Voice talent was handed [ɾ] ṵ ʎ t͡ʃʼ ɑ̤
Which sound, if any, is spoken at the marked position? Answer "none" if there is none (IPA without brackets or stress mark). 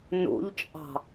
n